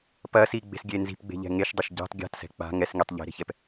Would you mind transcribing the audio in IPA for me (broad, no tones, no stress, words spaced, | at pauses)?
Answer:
pɐsiɡ͡be̤sɡʲe nzi̤pɡ͡be̤ʎɛ̤ ŋeʃdˤɐʃ ɟe̤tˤ ɡʲa̤tsɛ̤ k͡pa̤ ŋɛsŋitˤ ʎe̤ɾe̤çɛp